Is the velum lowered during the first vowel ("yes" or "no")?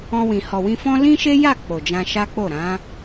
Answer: yes